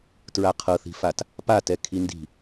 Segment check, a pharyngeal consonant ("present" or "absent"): absent